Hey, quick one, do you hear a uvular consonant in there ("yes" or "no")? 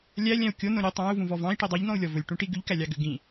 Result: no